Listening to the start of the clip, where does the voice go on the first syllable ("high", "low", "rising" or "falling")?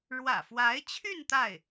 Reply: low